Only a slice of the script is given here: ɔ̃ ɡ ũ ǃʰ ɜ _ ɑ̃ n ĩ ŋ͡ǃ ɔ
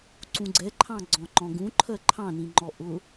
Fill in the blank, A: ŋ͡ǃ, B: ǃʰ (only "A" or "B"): B